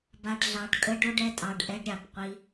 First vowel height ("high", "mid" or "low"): low